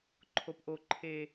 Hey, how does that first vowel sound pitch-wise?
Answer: rising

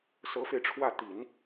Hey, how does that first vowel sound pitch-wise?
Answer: rising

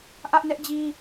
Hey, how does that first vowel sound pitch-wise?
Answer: high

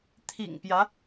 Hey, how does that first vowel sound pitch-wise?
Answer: low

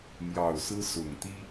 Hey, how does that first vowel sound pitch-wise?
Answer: low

